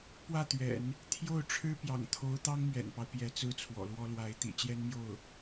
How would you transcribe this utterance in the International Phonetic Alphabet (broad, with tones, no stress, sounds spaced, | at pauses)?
p w ä˥˩ t̪ ɥ ɛ̰˨˩˦ n | t̪ʰ j o˥˩ ʊ̯ ʈ͡ʂʰ ɻ̩˥ p j ɑ̰˨˩ ŋ t̪ʰ o˧˥ ʊ̯ t̪ ɑ˥ ŋ m ɥ ɛ̰˨˩ n p ɑ˦ ʊ̯ p j ɛ˧˥ t͡s ɹ̩˥˩ t͡sʰ w ɔ̰˨˩ l w ɔ˥ l w a˧˥ ɪ̯ t̪ ḭ˨˩ t͡ɕ j ɛ˥ n m j o˥˩ ʊ̯